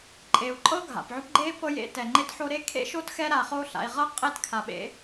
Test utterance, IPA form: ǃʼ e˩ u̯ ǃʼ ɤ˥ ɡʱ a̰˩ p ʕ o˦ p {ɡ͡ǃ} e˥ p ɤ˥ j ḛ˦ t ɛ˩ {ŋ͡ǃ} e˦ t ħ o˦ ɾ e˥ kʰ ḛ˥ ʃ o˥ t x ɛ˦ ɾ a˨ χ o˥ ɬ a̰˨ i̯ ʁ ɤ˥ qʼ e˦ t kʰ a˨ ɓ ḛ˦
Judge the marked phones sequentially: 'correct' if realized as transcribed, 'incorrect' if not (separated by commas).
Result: correct, correct